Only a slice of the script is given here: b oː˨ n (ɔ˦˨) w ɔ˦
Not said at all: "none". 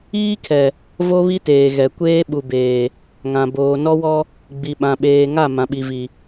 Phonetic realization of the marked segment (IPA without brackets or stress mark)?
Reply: ɔ˦